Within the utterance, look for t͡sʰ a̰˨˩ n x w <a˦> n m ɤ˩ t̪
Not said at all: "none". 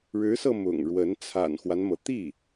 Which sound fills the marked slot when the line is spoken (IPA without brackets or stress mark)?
a˦